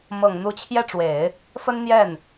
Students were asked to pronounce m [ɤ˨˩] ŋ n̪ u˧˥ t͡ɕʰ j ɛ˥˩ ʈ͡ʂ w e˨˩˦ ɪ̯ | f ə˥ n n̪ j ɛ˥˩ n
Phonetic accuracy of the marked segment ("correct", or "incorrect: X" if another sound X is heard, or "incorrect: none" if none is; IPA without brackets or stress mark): correct